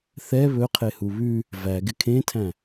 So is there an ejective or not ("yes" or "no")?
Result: no